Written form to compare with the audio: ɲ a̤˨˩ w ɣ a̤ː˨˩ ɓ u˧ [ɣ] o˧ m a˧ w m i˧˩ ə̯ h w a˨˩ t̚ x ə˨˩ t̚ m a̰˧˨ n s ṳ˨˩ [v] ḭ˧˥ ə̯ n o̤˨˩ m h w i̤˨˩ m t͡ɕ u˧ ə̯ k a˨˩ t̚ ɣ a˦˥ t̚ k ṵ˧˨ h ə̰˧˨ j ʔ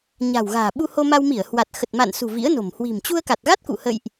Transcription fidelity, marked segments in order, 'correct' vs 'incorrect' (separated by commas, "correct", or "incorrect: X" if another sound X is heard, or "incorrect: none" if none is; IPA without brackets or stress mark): incorrect: h, correct